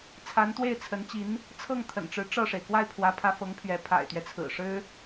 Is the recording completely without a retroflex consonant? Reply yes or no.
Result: no